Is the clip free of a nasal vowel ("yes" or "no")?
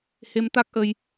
yes